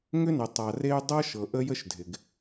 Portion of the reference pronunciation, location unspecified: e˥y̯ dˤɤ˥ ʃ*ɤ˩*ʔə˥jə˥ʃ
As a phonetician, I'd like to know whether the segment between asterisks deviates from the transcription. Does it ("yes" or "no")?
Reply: no